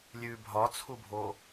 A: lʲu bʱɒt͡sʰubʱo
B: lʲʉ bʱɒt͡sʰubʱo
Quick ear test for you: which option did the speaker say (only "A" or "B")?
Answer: B